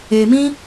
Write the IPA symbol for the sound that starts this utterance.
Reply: e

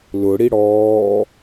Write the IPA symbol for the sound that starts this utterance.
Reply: l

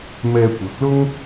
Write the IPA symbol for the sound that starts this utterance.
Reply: m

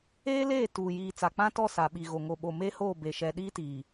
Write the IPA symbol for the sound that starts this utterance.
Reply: eː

